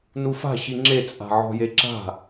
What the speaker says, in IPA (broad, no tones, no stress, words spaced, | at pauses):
nufa̤ ɕiŋ͡ǁe t͡sʼa̤ʕɔ̤jeǁa̤